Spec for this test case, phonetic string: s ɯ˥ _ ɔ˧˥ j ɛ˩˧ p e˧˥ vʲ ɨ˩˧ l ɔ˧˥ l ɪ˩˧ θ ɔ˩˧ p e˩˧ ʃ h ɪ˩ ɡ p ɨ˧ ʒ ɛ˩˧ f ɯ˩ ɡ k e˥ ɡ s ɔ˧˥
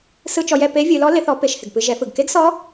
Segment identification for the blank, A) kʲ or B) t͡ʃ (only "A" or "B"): B